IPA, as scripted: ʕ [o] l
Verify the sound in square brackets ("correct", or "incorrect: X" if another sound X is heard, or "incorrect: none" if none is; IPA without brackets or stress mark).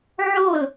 correct